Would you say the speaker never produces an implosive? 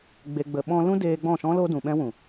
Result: no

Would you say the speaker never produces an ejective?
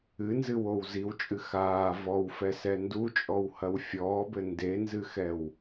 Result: no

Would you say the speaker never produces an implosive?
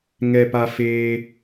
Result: yes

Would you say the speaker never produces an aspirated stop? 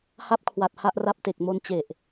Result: no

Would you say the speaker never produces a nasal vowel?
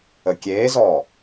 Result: yes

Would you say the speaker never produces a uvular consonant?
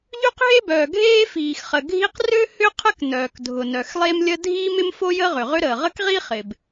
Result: no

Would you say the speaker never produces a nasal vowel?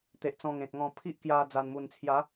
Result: no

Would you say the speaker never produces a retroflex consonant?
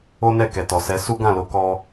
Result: yes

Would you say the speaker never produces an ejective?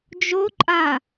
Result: no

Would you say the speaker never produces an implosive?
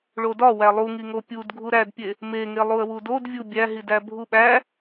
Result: no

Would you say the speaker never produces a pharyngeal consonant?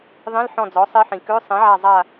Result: no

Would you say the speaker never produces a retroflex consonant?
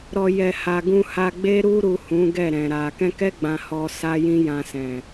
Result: yes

